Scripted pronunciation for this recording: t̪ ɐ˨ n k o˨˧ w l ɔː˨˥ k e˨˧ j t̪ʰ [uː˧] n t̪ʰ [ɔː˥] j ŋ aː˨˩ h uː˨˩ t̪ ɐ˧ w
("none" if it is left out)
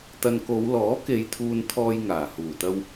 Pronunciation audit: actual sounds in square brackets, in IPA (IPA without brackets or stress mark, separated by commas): uː˧, ɔː˧